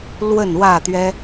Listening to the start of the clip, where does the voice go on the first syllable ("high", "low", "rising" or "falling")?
falling